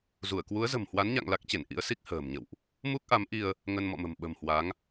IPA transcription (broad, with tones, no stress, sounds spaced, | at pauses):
z u˧˩ ə̯ k w u˨˦ ə̯ z ə̤˨˩ m h w a˨˦ n ɲ a̰˧˨ ŋ l a˦˥ k̚ t͡ɕ e˧˩ n ʔ ḭ˧˥ ə̯ s i˦˥ k̚ h ə̤ː˨˩ m ɲ ə̰˧˨ w ʔ | m u˦˥ k̚ ʔ a˨˦ m ʔ i˧ ə̯ | ŋ ə˧ n m ɔ̰˧˨ m ə̤˨˩ m ɓ ə̤˨˩ m h w a˨˦ ŋ